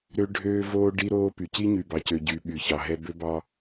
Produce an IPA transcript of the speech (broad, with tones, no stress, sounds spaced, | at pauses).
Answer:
ɾ ø˦ ɖʱ øː˦ v oː˦ ɖ i˦ ɾ oː˦ p y˨ c i˦ ɲ y˨ b ɑ˨ c ø˨ ɟ y˨˦ ɓ y˨ ç ɑ˨ ɦ ɛ˦ b ø˦ b ɑ˦